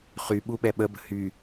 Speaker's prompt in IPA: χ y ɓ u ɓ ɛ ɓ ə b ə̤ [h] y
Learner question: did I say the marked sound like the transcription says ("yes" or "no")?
yes